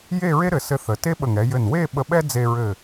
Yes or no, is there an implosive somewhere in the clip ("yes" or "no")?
yes